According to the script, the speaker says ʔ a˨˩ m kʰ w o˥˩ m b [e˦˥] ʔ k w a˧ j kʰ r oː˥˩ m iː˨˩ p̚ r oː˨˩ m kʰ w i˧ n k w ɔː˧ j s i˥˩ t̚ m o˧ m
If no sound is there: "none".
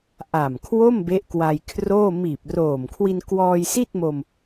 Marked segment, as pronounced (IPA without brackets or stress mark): e˦˥